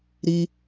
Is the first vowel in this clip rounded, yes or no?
no